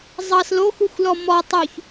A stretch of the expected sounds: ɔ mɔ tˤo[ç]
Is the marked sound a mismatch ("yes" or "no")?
no